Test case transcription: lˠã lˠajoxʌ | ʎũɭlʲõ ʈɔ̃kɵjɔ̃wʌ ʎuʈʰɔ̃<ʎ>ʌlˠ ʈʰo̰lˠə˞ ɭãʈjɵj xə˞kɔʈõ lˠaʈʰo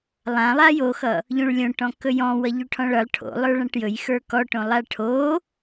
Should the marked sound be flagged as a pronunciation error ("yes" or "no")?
yes